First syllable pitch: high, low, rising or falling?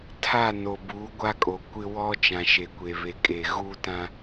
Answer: falling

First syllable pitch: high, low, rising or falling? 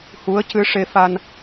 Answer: rising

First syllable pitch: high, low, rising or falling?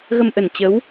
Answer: low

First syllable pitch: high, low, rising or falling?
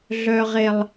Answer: low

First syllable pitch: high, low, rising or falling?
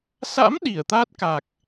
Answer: rising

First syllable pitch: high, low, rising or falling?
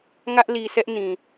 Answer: high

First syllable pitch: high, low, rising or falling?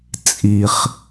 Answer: low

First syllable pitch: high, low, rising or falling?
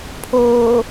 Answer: low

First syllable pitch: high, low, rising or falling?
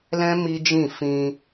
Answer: high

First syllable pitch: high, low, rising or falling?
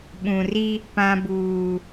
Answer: low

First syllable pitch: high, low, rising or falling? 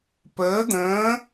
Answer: rising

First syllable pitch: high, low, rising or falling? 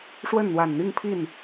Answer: falling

